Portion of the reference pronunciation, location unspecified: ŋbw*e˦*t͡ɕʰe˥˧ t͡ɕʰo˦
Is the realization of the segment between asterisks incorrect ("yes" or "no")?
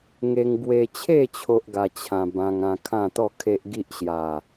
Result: yes